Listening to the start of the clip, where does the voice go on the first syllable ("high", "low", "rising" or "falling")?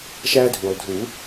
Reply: high